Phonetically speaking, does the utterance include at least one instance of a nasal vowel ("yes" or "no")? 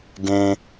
yes